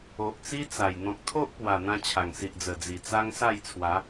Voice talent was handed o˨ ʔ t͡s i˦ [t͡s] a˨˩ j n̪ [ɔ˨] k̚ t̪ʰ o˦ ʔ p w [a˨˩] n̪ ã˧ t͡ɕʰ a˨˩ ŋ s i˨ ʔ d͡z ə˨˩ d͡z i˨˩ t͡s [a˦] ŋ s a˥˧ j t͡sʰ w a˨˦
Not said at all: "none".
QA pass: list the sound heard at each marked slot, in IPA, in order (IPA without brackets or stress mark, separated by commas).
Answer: t͡s, ɔ̃˨, a˨˩, a˦